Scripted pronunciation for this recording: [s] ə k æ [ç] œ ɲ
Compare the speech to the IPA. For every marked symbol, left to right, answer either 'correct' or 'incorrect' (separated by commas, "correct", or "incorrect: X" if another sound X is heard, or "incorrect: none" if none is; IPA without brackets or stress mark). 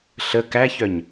incorrect: ɬ, correct